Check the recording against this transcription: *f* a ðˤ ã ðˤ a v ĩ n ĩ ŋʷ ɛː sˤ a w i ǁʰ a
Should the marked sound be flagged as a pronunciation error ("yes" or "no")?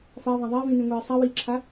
no